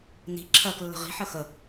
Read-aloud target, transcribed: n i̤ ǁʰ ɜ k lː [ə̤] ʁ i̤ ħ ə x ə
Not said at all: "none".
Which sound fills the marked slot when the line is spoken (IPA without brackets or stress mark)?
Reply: ə̤